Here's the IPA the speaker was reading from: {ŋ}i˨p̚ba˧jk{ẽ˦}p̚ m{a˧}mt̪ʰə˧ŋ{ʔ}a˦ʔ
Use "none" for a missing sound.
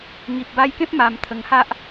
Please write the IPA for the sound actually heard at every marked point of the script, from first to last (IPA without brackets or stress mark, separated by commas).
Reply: ŋ, ẽ˦, a˧, h